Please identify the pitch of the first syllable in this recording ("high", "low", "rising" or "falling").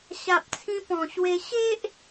low